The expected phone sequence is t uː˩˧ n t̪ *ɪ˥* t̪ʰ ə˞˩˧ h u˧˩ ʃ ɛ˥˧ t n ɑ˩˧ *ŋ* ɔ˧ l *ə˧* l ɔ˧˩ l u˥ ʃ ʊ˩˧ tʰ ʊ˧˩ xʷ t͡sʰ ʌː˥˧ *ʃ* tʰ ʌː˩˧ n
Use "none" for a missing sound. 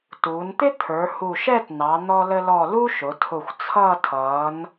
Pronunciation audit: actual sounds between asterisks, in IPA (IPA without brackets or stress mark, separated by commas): ɪ˥, n̪, ə˧, none